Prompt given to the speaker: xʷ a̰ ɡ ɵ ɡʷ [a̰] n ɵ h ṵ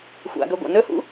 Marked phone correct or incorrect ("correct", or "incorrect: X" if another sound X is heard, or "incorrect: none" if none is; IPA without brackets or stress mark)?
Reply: correct